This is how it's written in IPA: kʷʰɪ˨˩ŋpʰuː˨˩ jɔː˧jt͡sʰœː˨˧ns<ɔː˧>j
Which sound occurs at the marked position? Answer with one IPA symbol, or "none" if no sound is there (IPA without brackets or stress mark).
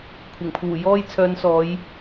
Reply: ɔː˨˧